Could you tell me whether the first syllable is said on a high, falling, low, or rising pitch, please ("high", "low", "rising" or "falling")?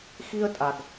high